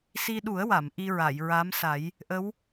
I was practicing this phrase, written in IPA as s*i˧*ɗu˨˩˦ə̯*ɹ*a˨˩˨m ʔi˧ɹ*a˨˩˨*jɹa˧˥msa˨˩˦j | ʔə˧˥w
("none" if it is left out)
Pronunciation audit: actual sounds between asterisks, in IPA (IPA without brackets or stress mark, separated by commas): i˧, w, a˨˩˨